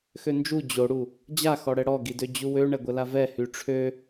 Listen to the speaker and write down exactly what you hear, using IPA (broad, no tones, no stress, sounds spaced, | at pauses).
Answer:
x ø n d͡ʒ u d͡ʑ o ɽ u | d͡ʑ a x ɔ ɽ ɛ ɽ ɔ ɡ i d ø d͡ʑ u w ø ɳ ɛ ɡʷ ə l a v ɛ h y ʈ͡ʂʰ ø